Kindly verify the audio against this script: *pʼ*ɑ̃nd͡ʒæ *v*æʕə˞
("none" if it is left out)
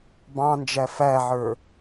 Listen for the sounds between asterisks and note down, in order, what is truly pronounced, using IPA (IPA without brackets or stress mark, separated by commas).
b, f